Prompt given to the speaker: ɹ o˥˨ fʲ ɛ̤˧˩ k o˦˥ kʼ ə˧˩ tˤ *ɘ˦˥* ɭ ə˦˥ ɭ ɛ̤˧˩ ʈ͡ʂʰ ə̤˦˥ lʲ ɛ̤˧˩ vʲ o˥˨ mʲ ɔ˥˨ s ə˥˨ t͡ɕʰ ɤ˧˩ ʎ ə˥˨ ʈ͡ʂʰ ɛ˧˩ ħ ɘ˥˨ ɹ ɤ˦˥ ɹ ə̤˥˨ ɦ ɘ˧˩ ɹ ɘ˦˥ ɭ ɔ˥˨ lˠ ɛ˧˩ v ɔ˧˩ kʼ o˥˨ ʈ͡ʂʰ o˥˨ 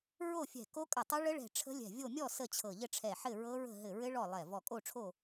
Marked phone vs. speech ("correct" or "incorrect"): correct